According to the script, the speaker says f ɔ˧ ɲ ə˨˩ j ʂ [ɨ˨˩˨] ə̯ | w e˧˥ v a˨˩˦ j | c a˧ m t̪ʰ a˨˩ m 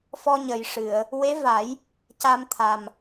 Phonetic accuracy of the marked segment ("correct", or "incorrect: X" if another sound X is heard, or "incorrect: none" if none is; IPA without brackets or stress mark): correct